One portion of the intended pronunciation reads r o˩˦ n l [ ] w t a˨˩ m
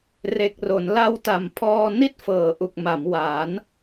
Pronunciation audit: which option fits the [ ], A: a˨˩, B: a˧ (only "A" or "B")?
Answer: B